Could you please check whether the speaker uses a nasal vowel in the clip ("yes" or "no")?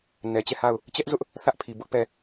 no